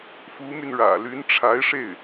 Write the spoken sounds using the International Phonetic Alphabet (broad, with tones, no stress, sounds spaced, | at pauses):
f u˧˥ m y˧ n ɻ ä̰˨˩ l y˧˥ n ʈ͡ʂʰ a˧˥ ɪ̯ ʂ e˥˩ ɪ̯